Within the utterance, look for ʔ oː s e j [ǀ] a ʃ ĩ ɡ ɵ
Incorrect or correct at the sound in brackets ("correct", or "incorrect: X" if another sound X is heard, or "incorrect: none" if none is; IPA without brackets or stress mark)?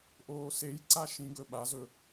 correct